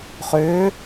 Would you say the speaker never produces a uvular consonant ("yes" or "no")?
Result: no